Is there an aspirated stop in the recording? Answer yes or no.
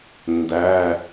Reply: no